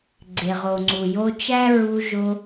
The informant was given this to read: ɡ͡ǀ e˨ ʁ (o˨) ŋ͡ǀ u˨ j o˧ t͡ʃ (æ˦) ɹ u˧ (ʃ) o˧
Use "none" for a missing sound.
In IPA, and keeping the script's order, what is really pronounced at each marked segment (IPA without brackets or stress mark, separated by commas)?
o˨, æ˦, ʒ